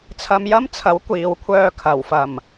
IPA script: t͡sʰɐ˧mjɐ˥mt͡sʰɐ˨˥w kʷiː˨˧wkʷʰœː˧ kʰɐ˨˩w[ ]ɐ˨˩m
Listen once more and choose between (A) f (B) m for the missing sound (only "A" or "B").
A